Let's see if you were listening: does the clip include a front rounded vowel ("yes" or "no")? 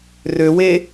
yes